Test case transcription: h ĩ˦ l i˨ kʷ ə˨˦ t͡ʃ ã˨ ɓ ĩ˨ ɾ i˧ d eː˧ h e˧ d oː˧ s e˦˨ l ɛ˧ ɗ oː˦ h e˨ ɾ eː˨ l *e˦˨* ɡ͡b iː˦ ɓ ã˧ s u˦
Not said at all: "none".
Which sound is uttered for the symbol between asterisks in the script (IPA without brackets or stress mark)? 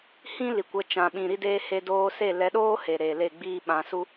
e˦˨